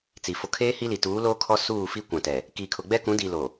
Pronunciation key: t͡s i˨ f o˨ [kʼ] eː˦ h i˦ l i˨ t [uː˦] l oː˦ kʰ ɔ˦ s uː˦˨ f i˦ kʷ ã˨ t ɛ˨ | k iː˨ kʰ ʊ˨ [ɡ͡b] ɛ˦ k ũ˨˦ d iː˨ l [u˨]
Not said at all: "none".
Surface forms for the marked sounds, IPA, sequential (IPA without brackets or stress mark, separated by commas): kʰ, uː˨˦, ɡ͡b, o˨